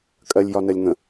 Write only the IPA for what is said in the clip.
kʼ ɜ lʲ j ɒ n ɜ lʲ ŋ ə̃

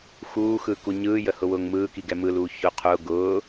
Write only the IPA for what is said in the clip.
x uː x ɯ k u ɲ ɯː j ə h ʊ w ʊː ŋ m ɯː k i ɡ ɛ m ɯ l uː ç ʊ qʰ ʊ ɡ ʊː

